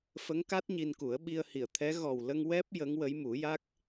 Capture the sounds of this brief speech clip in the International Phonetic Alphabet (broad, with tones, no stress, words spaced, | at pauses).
fə˧˥ŋka˦˥t̚ ɲi˧nku˨˩˦ə̯ ɓi˧ə̯hi˨˩˨ə̯t̪ʰɛ˧˥ ɣɔ˨˩wlə˧ŋ wɛ˦˥p̚ jə˧˥ŋwə˧˥j mu˨˩˦ja˦˥k̚